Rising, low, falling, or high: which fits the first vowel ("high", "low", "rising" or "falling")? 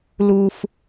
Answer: high